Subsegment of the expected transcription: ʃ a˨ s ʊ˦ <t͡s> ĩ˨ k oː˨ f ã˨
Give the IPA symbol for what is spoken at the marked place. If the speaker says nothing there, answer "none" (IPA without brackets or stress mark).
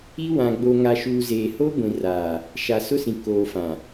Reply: s